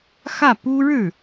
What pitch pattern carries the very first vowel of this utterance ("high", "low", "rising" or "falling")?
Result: falling